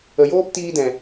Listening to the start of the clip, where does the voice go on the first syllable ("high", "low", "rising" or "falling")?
low